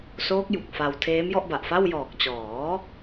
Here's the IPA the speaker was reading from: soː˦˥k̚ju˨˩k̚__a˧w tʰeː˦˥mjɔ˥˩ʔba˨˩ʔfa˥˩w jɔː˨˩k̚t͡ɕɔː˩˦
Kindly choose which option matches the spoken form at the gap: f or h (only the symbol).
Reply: f